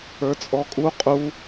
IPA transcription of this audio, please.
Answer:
ə˞ t͡sʼ ɔ kʼ u qʼ u

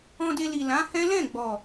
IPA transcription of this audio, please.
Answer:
ɔ̃˧ d e˧ l i˨ l ã˨˦ h ɛ̃˦ l ɛ̃˦˨ ɡ͡b ɔ˨

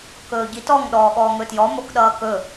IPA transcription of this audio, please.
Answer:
k ɵː ɟ i t ɔ ŋ ɗ ɔː ɠ ɔː ŋ ɵ t j ɔ m o k ɗ ʌː k ɵ

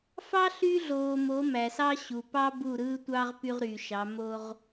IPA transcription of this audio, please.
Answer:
f ɑ˦ ɬ y˦ ɮ oː˨ m o˨˦ m æ˨ s ɑ˦ ɕ u˨ p ɑ˦ b u˦˨ ɾ ɯː˦ tʷ ɑ˦ ʁ p y˦ ʁ ɾ yː˨ ʃ ɑ˨˦ m o˦ ʁ

